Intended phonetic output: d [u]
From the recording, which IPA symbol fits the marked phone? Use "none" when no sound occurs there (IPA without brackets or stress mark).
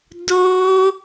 o